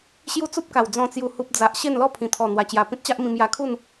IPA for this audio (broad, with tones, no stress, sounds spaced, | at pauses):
ɕ j u˦ t͡s u˦ p̚ k a˨˩ w d͡z ɔ̃˨˩ t͡s j u˨˩ h u˨ p̚ d͡z a˨ ʔ ɕ e˥˧ n l ɔ˥˧ pʰ ĩ˨˩ t̪ʰ ɔ˨˩ n̪ w a˨˩ t͡ɕ j a˨˩ p ĩ˦ t̚ t͡ɕ a˦ ʔ m ĩ˧ m j a˧ kʰ u˥˧ n